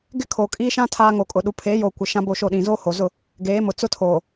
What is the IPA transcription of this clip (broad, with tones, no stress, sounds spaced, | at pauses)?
ɡ ɪ˦ kʰ oː˨ kʼ iː˦ ʃ ã˦ tʰ aː˦ ŋ o˨ kʼ ʊ˨ ɗ u˨ pʰ eː˨˦ j oː˨ kʷ ɪ˨ ʃ ã˦ b o˦˨ ʃ o˦˨ ɗ ĩ˨ z oː˦ h o˨ z ʊ˦˨ | ɡ eː˨˦ m ʊ˨ t͡s ʊ˦ tʰ oː˨